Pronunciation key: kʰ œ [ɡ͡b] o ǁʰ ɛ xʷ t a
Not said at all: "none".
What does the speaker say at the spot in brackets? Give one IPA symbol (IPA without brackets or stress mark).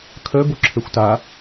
b